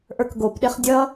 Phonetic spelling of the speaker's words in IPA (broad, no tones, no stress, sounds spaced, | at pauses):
ʔ ə˞ k ɡ o p ɗ e χ dʲ ʌ